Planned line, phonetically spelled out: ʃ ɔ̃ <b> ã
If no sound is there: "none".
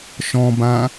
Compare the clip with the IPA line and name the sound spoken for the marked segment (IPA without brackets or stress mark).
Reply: b